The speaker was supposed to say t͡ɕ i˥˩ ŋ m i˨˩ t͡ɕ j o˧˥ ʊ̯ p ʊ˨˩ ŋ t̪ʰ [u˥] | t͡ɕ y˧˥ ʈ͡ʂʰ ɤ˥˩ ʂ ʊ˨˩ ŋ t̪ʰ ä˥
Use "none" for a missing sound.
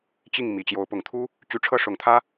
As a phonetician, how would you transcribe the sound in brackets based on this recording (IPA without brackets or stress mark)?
u˥